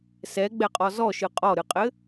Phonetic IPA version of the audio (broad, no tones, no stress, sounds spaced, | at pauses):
s ɛ ɡ͡b ɛ qʼ ɔ z ɔ ʃ ɨ qʼ ɔ ɾ ɨ qʼ ɘ